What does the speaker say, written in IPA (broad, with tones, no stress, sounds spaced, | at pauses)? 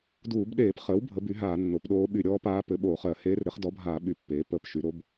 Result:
d uː˧˩˧ b ɗ eː˧˩˧ p χ əː˩˥ w bʱ ə˩˥ b y˩˥ ɦ aː˧˩˧ nː o˩˥ p ɗ oː˧˥ ɓ y˧˩˧ ɾʲ ɔː˧˥ p aː˧˥ p ɘ˩˥ ɓ oː˧˩˧ χ ɜ˧˩˧ h eː˧˥ r ɾ ɘ˩˥ χ d ɔ˩˥ bʱ aː˧˩˧ ɓ y˧˩ pː eː˩˥ p əː˧˩˧ p ʃ y˩˥ ɾ o˩˥ b